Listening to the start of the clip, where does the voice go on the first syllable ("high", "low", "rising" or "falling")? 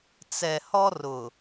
low